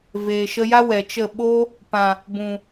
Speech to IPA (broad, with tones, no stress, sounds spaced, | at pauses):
v eː˨ ʃ ə˧ j a˦ w ɛ˨ t͡ʃ ə˦˨ ɓ o˧ | p ã˨ | b ũ˨